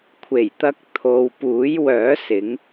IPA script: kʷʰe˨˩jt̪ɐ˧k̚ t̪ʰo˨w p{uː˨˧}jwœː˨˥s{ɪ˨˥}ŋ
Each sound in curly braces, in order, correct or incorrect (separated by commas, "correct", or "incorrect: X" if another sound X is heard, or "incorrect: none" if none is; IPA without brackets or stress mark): incorrect: uː˨˥, correct